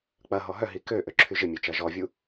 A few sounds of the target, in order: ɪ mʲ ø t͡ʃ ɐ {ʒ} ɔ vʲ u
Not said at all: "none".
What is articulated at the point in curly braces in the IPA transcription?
ʒ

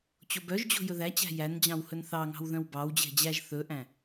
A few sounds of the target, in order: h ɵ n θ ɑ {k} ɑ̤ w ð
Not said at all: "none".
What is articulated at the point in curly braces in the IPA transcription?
ŋ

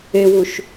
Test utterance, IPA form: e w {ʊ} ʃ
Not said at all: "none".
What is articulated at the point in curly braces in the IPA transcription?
u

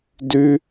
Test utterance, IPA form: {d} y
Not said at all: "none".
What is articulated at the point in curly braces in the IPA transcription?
d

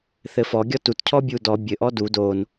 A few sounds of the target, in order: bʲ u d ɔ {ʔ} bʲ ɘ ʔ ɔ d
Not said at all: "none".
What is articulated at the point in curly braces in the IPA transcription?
none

